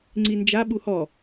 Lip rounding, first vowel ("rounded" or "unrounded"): unrounded